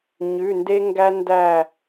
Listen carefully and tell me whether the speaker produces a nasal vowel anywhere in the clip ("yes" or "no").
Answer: no